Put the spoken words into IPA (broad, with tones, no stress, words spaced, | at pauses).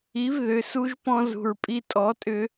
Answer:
i˩˥vðʏ˩su˧ʒpɔ̃˧ zṳ˩ɹpʼi˧tʼɔ˩˥tʼʏ˧